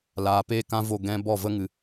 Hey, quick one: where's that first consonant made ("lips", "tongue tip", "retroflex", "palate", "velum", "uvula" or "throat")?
tongue tip